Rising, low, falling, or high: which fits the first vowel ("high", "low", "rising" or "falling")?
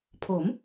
rising